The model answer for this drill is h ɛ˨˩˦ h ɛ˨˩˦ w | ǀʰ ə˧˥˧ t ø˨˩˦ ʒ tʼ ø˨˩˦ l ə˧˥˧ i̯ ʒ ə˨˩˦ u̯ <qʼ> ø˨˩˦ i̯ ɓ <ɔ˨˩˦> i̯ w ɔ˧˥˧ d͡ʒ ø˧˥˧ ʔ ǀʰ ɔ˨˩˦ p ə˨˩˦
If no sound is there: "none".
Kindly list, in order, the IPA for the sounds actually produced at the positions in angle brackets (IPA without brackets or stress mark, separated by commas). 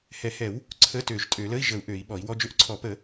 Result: ʔ, ɔ˨˩˦